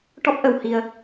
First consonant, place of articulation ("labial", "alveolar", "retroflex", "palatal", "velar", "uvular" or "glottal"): retroflex